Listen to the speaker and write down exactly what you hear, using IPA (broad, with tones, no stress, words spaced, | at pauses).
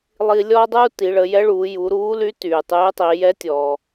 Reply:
lˠi˧lʲɔː˥dˤuː˥ ti˩˧ɭə˩˧jɛ˧˥ɭuː˩˧ ju˩˧ɾuː˧˥ly˧˥ tyː˩tˤyː˧˥tˤi˩˧ jɛ˧˥tʲɔ˩